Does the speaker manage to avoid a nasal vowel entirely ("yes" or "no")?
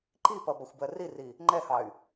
yes